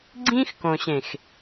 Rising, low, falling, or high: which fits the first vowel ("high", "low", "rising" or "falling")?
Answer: high